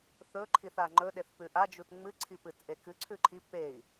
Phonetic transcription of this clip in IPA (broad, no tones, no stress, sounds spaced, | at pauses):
θ ɵ ǃʰ i θ a ŋ͡ǃ ɵ ɗ e θ p ʉ ʔ a d͡ʒ u t ŋ͡m ɨ ǀʰ i p ɨ t ʔ e k ɨ ǀʰ ʉ ǃʰ i p e i̯